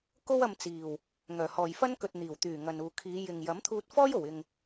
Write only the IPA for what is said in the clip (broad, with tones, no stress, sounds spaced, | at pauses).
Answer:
k o˥ w ɐ˧ m t͡s iː˨˩ w | ŋ œː˨˩ h ɔː˨ j f ɐ˥ n k ɵ˨ t̚ n̪ iː˨˩ w t̪ yː˨˩ ŋ ɐ˨ n uː˨ kʰ iː˨˧ j ɪ˨ ŋ j ɐ˨˥ m t̪ʰ uː˧ t̚ f ɔː˥ j o˨˩ w ɪ˨ ŋ